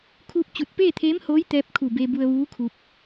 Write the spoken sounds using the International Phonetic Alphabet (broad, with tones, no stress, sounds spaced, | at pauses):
kʰ uː˥˨ p̚ t͡ɕ u˧˩ t̚ p eː˥˨ t̪ʰ eː˧˥ m h oː˧˥ j t̪ ɛː˧˥ p̚ kʰ u˧˩ b e˧ b u˧ ə̯ ʋ uː˧˥ kʰ u˧ p̚